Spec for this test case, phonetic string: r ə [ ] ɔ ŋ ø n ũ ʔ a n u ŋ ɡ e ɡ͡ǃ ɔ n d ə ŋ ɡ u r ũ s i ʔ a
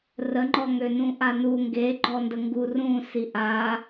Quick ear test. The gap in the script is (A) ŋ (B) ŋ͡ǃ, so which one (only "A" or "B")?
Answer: B